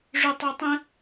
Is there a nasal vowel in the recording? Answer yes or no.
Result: yes